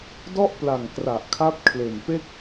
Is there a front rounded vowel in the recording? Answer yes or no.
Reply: no